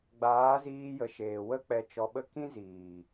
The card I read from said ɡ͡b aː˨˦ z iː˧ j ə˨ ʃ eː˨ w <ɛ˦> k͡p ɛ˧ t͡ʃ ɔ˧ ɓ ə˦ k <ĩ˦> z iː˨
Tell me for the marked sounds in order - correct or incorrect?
incorrect, correct

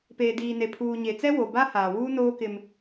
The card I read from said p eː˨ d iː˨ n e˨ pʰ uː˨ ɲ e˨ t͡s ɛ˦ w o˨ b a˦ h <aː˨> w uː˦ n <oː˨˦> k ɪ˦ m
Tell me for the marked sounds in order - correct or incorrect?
correct, incorrect

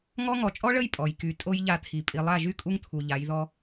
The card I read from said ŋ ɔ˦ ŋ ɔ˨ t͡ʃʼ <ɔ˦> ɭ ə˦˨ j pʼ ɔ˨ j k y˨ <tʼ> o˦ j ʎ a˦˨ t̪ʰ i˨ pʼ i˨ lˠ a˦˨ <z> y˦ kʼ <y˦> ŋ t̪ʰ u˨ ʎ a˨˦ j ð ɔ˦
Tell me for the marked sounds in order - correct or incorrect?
correct, correct, incorrect, incorrect

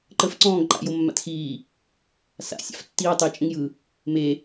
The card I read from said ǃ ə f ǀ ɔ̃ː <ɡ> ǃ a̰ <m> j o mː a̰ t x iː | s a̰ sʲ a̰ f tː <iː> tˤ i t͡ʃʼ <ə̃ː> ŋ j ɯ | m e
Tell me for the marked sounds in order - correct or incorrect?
correct, incorrect, correct, incorrect

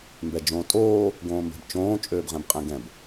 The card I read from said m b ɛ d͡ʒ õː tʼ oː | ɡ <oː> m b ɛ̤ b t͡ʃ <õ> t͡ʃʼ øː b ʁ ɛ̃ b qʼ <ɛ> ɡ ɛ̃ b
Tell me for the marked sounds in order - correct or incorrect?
incorrect, incorrect, incorrect

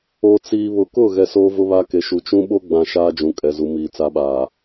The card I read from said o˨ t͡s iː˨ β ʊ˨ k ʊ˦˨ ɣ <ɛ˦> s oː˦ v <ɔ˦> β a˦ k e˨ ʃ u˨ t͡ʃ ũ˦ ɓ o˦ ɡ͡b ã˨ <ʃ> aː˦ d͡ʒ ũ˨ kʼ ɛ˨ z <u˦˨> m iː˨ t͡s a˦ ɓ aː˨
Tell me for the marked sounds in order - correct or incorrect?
incorrect, incorrect, correct, incorrect

